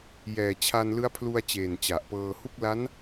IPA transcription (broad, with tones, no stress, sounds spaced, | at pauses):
j ɛː˨˩ t͡ɕʰ a˧ n l ɯ˦˥ a̯ pʰ l u˧ a̯ t͡ɕ eː˨˩ n t͡ɕ a˨˩ ʔ p ɤː˧ h u˥˩ k̚ l a˦˥ n